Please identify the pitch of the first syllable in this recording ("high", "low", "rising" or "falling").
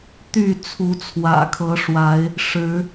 falling